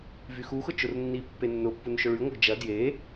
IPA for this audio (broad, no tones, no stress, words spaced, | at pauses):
vyxuxʊ t͡ʃʊrnːipːe nːʊpːun ʃʊɭyŋʷœɡ d͡ʒɐ dje